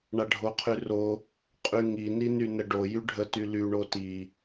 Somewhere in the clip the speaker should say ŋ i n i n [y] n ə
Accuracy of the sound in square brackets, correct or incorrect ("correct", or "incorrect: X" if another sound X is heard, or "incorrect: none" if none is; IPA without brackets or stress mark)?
correct